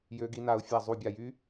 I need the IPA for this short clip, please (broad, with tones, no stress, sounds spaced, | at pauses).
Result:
j ø˦˥ ɡ i˦˥ n a˦˥ ʊ̯ fʲ a˦˨ zˤ u˦˨ bʲ a˦˨ j y˦˥